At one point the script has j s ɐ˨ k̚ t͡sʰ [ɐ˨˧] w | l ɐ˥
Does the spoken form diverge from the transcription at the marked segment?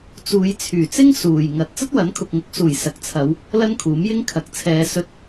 no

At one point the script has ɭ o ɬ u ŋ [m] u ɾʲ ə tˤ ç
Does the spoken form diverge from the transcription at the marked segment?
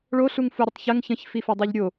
yes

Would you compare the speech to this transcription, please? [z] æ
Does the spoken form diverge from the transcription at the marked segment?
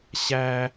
yes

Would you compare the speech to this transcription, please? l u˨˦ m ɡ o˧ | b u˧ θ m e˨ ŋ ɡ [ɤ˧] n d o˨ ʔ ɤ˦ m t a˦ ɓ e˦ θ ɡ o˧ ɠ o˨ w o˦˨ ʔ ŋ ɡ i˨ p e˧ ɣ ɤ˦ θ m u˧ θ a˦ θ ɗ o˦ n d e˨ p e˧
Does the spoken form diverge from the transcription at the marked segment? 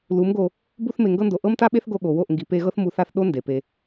no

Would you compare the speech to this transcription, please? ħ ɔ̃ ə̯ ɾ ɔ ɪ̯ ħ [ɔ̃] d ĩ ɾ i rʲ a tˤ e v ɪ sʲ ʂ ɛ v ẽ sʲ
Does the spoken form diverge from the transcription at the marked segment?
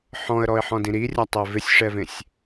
no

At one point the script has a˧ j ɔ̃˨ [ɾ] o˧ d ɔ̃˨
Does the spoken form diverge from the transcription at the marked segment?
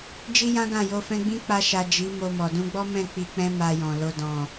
yes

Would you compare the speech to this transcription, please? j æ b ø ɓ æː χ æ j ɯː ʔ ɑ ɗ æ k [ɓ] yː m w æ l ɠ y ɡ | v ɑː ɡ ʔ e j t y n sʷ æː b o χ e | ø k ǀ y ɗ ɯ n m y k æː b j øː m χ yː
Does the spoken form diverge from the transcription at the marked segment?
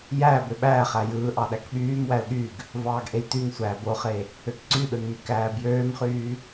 no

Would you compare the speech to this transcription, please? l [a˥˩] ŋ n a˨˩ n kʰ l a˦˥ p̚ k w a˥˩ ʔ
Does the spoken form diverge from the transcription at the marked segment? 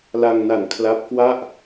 yes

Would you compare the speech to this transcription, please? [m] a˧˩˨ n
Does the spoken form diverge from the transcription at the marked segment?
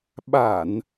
yes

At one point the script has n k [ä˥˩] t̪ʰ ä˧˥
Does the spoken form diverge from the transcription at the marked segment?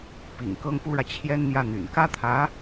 yes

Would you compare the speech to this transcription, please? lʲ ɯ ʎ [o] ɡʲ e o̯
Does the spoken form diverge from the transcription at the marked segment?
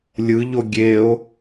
no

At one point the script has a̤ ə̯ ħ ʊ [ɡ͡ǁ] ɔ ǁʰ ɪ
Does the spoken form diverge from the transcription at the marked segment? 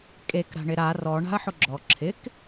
no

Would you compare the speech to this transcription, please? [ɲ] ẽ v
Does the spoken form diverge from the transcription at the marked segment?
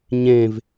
no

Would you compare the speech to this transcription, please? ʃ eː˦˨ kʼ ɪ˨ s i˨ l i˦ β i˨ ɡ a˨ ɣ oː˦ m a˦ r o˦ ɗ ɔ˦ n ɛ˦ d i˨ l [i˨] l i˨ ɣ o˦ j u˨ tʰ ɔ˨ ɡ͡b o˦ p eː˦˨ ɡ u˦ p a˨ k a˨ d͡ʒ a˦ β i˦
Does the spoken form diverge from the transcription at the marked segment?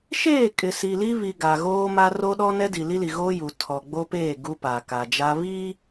yes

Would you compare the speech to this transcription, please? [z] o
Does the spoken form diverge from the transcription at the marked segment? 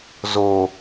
no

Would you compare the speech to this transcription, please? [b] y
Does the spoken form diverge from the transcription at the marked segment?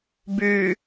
no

